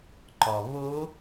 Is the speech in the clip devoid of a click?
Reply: no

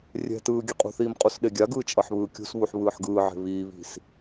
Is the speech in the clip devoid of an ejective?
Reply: no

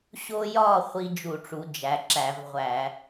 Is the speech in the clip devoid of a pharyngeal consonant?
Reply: yes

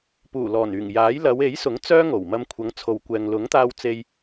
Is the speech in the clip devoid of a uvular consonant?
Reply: yes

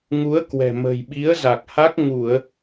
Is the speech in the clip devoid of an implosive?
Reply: no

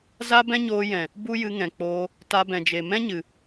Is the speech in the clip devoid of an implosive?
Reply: yes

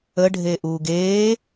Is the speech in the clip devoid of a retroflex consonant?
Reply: no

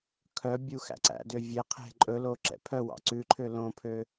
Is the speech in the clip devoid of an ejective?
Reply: no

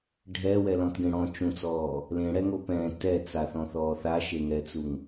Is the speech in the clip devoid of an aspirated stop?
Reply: yes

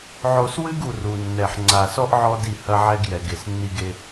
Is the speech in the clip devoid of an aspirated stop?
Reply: yes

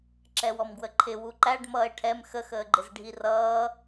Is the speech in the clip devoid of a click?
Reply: no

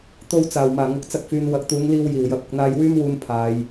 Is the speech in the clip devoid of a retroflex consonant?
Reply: yes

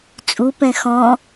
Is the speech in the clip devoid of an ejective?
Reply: no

